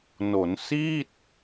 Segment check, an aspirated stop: absent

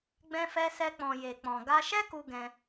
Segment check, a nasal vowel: present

